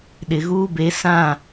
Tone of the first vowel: low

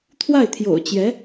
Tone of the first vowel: falling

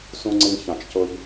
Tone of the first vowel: high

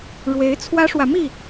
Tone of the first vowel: rising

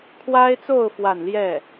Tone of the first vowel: high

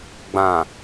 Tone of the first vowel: low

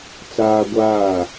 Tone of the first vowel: high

